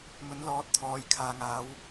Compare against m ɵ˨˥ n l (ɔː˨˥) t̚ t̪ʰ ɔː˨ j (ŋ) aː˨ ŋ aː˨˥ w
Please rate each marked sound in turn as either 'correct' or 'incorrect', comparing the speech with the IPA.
correct, incorrect: kʰ

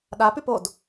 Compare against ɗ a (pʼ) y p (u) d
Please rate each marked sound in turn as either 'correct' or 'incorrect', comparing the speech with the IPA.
incorrect: p, incorrect: o

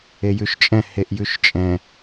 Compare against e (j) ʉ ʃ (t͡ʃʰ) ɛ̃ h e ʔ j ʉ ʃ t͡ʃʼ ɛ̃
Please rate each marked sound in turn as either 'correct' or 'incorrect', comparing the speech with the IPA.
correct, incorrect: t͡ʃʼ

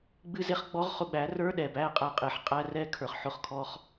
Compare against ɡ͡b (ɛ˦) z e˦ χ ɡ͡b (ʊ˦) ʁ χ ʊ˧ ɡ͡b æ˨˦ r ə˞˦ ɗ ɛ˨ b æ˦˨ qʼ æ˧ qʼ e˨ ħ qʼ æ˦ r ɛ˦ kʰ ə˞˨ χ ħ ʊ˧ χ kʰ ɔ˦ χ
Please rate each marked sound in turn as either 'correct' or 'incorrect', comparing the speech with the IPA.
incorrect: ɨ˦, incorrect: ɔ˦

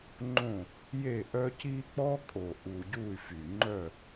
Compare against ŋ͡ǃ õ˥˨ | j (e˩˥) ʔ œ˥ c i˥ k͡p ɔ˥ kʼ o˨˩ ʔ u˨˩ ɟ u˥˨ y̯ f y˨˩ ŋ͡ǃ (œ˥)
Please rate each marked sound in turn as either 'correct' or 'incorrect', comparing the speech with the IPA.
incorrect: e˥˨, incorrect: œ˥˨

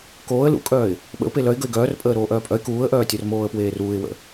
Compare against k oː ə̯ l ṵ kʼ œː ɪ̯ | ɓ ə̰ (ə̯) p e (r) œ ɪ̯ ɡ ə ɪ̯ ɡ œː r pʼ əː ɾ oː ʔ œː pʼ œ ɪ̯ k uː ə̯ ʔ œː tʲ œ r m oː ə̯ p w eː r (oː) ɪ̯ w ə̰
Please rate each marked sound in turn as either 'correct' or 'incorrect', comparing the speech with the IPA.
incorrect: ʊ̯, incorrect: l, incorrect: uː

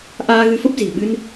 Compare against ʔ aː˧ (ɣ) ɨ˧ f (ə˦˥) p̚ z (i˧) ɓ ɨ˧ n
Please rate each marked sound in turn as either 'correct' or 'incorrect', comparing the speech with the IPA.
correct, correct, incorrect: i̤˨˩

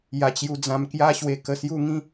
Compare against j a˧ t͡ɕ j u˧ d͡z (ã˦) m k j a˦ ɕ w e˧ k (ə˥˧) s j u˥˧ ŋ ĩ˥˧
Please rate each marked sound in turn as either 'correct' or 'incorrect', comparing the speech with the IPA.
incorrect: ã˧, incorrect: ə˧

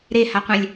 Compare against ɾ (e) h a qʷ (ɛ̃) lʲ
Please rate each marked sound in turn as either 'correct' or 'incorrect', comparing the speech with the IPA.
correct, correct

